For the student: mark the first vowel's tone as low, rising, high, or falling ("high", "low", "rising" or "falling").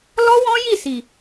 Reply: high